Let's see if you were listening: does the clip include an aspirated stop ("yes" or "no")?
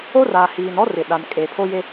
yes